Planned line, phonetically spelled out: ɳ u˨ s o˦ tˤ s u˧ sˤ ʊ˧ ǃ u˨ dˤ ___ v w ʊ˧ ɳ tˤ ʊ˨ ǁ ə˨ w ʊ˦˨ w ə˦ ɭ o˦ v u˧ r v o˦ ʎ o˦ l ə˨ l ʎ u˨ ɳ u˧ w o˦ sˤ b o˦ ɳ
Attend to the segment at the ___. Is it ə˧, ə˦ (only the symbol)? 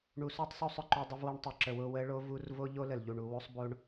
ə˧